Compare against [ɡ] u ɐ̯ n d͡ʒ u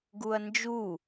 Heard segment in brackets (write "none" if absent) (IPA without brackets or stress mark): ɡ